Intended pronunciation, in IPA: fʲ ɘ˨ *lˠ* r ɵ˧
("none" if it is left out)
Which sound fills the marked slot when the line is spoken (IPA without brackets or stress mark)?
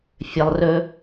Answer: lˠ